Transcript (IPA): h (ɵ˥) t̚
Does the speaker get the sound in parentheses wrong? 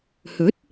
yes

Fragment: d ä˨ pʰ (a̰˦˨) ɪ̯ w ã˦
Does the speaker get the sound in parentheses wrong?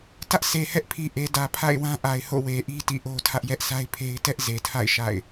no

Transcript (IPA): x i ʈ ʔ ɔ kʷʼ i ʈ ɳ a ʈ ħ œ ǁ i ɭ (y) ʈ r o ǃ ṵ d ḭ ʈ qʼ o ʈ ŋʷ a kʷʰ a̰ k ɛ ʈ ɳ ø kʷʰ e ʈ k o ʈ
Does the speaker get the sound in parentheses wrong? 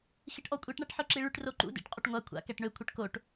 no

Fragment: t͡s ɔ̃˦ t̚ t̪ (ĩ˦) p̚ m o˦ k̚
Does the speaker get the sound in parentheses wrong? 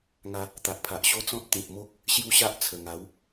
yes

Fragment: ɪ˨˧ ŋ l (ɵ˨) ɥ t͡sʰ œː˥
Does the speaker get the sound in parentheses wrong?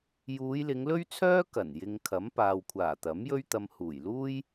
yes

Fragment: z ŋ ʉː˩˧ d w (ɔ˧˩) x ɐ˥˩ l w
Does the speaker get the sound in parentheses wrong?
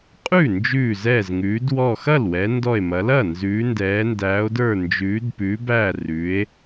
no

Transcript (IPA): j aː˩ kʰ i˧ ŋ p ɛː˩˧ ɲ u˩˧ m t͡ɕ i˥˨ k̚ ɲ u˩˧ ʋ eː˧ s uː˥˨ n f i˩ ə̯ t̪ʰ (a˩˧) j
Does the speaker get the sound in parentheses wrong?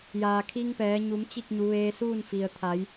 no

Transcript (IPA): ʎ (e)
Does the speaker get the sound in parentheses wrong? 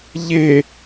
no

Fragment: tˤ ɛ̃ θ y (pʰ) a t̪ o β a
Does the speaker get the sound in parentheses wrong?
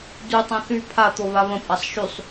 no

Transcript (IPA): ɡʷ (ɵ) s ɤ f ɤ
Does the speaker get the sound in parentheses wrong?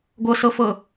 yes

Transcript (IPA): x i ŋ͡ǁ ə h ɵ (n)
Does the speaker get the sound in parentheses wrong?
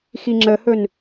no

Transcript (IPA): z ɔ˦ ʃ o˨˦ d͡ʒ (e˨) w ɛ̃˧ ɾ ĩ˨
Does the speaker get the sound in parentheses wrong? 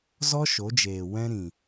yes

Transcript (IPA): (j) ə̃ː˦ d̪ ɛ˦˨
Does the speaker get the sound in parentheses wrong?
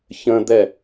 yes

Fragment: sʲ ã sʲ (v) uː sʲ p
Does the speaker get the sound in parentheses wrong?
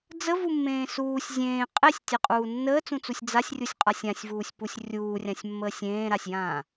no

